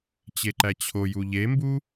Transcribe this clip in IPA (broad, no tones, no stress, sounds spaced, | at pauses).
t͡ɕ e ǃ æ t͡ɕʰ o j u ʎ e m b u